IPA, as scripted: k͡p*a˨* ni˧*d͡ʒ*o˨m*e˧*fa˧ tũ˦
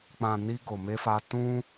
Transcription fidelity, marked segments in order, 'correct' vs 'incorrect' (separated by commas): incorrect, incorrect, correct